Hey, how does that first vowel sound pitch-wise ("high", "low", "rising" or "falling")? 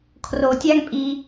low